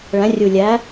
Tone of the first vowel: rising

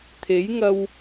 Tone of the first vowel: rising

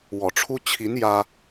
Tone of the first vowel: low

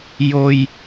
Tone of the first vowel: high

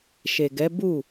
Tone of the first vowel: low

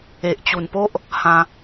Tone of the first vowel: low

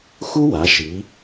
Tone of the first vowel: high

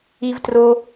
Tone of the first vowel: high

